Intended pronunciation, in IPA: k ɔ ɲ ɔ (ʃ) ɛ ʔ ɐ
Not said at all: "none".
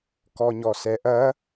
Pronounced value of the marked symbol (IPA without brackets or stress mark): s